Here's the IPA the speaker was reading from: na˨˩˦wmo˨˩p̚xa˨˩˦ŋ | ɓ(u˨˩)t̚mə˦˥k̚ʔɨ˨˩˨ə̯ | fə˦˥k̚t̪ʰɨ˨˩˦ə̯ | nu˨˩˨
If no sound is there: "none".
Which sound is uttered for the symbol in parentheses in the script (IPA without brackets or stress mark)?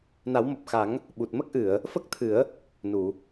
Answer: u˨˩